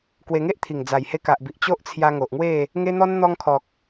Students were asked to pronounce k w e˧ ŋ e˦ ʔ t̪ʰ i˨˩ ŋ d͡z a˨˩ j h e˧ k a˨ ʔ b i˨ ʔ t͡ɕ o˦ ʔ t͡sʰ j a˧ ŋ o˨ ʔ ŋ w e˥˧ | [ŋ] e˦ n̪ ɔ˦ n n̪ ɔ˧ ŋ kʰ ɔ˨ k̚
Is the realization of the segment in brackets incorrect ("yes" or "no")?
no